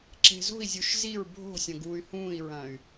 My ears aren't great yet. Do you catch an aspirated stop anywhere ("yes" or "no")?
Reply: no